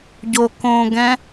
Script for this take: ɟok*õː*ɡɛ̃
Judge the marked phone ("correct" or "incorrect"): correct